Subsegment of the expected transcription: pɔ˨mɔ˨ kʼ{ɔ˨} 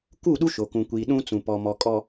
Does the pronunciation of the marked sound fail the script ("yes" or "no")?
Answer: no